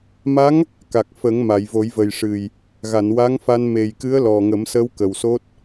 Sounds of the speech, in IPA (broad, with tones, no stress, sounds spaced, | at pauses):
m a˧˥ ŋ | k a˨˩ k̚ f ə˨˩˦ ŋ m a˨˩˨ j v o˨˩˦ j v ə˨˩ j ʂ ɨ˨˩ j | ɣ a˨˩˨ n w a˧˥ ŋ f a˧ n m e˨˩ j k ɨ˧˥ ə̯ l ɔ˨˩ ŋ ə˨˩˦ m s ə˧˥ w k ə˨˩ w s o˦˥ t̚